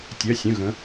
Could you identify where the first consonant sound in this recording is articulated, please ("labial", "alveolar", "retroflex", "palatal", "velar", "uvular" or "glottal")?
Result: alveolar